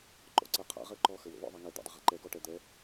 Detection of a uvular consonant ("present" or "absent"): present